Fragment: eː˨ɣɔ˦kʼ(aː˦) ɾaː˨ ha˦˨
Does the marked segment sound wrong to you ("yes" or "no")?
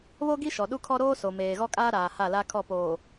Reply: no